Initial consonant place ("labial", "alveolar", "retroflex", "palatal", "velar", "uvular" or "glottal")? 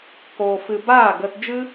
velar